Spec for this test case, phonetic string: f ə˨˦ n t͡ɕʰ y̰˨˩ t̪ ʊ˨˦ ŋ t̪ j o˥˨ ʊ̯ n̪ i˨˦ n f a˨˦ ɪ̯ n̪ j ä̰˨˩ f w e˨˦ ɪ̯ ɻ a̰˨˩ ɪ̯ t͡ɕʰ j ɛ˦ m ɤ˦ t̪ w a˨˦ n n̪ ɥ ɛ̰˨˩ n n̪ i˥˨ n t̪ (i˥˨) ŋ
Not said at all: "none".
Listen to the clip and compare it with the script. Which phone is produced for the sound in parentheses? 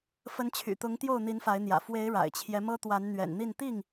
i˥˨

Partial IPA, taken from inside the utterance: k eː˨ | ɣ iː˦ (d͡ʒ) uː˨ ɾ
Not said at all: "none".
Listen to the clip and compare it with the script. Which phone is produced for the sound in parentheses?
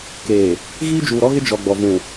d͡ʒ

